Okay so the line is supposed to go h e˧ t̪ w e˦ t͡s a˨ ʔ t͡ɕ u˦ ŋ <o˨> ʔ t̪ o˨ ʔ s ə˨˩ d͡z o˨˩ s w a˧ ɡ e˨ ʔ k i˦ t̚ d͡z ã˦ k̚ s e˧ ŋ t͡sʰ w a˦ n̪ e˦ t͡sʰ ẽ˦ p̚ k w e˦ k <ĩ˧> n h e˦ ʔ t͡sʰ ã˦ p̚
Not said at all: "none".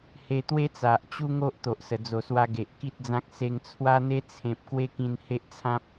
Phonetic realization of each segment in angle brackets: o˦, ĩ˧

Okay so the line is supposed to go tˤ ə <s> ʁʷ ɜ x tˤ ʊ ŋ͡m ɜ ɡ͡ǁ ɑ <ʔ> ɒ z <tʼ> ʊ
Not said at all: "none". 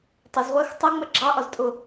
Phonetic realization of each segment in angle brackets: z, ʔ, tʼ

